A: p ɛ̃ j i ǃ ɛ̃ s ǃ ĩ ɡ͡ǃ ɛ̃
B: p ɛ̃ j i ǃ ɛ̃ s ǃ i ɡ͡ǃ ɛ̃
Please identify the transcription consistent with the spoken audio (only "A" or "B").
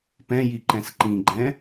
A